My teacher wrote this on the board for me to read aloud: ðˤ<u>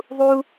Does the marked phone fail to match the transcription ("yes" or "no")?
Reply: no